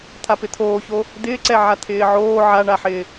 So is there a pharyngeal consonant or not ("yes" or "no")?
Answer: yes